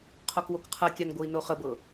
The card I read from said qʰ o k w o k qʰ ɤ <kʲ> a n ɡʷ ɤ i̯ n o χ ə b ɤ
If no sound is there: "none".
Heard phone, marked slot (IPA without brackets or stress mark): kʲ